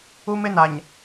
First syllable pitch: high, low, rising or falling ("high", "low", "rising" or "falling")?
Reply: high